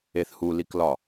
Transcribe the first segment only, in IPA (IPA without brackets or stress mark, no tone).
e